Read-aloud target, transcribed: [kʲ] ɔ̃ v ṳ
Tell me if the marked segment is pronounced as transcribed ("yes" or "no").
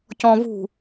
no